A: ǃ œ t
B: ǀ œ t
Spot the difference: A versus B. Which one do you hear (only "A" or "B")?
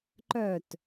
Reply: A